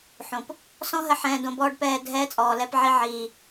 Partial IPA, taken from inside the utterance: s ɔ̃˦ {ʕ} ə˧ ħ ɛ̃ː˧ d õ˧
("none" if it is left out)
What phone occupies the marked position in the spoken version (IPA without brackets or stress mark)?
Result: ɦ